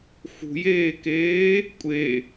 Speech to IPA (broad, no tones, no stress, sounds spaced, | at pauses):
x ṳ j eː k eː | kʷʼ e